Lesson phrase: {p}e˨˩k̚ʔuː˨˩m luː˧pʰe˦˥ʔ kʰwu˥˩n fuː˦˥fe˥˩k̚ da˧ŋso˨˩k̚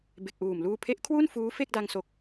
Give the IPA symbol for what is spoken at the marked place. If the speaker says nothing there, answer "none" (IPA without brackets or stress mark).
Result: b